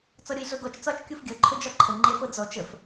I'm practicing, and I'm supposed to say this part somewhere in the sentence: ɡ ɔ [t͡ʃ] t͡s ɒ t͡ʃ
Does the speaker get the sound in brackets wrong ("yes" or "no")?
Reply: no